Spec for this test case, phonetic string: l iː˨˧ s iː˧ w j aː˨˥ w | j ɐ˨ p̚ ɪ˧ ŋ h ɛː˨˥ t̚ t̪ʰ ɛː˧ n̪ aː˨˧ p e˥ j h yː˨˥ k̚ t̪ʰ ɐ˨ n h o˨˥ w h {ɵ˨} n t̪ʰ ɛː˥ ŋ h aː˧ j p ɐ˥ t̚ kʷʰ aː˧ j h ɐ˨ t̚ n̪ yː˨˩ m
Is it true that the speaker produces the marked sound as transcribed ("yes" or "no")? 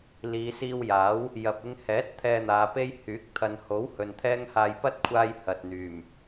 yes